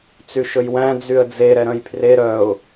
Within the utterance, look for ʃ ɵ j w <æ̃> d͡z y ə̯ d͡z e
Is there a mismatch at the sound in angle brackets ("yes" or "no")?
no